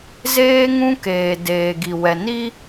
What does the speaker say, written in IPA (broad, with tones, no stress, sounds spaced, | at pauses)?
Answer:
z eː˦ ŋ ũ˦ k eː˨ d eː˨ ɡ i˨ w ɛ˨ n i˦